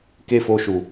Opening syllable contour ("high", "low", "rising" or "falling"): high